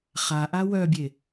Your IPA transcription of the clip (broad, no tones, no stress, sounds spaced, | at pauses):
χ a ʔ a w œ bʲ e